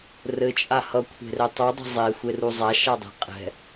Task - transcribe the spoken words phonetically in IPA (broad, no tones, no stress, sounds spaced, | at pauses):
r ɘ t͡ʃʼ a h ʌ kʷʰ e̤ r ɛ tˤ u dˤ ɛ̤ zˤ e xʷ e r u zˤ a ʃ a dˤ e̤ qʼ ɛ̤